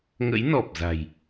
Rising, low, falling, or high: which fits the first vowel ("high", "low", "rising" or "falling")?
rising